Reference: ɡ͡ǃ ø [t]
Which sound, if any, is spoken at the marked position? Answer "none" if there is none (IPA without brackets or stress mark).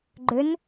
n